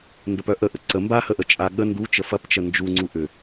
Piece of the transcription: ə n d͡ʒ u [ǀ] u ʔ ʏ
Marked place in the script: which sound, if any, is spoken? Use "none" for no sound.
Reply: ŋ͡ǀ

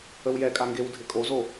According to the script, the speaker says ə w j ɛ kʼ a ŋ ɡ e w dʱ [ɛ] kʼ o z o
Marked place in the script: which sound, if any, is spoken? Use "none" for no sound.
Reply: ɪ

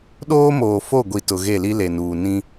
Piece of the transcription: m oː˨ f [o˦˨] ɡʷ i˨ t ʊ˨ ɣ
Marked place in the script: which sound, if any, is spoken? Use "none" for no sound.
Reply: o˦˨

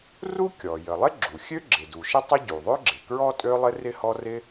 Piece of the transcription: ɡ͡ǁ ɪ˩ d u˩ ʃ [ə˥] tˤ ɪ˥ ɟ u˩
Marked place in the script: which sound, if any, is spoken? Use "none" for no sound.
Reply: ə˥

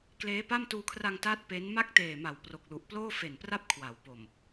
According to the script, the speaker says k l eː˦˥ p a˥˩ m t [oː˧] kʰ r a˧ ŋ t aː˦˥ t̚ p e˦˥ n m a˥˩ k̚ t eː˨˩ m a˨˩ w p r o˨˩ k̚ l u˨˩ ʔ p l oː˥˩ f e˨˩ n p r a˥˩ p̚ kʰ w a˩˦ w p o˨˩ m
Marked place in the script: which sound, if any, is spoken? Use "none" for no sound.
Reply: uː˧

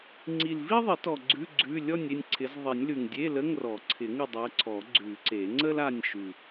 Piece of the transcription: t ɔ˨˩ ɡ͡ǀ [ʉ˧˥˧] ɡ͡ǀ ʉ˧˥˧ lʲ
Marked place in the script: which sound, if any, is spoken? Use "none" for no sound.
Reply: ʉ˧˥˧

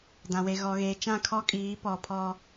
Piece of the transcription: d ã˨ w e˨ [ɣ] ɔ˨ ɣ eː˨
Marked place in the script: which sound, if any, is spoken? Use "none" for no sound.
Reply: ɣ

